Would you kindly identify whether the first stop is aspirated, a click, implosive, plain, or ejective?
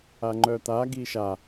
click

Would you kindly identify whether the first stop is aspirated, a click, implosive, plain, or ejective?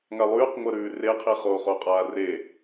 plain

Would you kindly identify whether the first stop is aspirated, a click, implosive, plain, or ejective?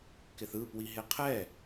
plain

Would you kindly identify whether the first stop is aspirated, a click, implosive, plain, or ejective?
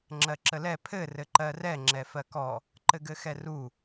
click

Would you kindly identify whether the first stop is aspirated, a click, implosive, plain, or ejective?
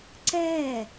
click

